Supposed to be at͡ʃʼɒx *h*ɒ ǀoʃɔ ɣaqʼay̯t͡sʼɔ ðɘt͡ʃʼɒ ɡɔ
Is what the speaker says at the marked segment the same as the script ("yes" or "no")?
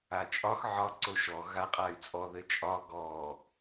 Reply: no